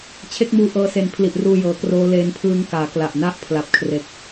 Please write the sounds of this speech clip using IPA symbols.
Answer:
t͡ɕʰ e˦˥ k̚ m uː˧ ʔ ɤː˧ s e˩˦ n pʰ l i˨˩ ʔ r uː˧ j ɤː˩˦ k r oː˦˥ l eː˦˥ n pʰ ɯː˦˥ ŋ k aː˩˦ k l a˨˩ ʔ n a˥˩ ʔ pʰ l a˨˩ p̚ kʰ r e˨˩ k̚

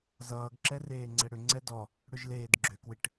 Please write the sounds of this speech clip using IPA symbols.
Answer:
z ʌː ɡ ǁ ɛ r eː ŋ͡ǀ ɛ ɽ ʏ ŋ͡ǀ ɛ d ɔ | ɽ ʏ ʒ l eː d ɡ͡ǁ ʏ k w ɪ ʈ

